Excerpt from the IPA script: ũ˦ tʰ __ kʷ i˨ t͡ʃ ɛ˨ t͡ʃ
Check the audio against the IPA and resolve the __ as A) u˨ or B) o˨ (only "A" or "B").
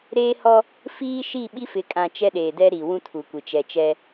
A